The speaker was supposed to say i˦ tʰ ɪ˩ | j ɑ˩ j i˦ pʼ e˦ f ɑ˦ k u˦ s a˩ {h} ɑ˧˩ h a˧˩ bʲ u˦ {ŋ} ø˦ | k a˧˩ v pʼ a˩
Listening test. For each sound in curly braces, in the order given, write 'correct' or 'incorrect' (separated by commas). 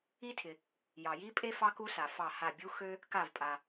incorrect, incorrect